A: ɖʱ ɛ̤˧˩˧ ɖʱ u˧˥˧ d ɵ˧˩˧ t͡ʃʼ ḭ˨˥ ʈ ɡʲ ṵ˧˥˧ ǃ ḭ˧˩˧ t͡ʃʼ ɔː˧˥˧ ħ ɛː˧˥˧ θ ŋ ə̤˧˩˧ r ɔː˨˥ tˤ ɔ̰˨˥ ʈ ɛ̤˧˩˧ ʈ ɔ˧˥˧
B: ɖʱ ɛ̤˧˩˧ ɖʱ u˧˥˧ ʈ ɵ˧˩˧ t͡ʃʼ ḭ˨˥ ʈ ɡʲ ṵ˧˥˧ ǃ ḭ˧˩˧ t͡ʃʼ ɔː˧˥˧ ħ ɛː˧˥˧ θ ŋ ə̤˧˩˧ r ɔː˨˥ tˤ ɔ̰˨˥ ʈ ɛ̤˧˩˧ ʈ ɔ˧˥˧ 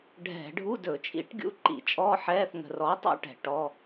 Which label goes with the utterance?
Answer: A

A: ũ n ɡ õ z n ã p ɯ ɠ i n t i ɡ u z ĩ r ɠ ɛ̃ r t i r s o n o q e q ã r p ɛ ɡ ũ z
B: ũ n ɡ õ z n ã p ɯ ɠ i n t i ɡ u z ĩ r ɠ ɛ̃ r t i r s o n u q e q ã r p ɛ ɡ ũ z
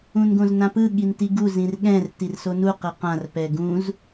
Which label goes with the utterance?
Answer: B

